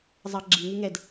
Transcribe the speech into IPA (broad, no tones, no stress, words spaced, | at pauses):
zˤɑɡ͡ǁi ŋʉŋɛd